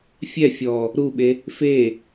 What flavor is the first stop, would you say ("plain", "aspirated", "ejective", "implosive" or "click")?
implosive